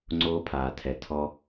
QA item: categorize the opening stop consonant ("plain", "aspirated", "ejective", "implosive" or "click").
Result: click